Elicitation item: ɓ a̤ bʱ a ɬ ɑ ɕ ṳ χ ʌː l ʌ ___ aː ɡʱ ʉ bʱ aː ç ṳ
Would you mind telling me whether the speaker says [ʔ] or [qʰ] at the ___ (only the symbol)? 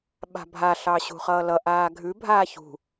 ʔ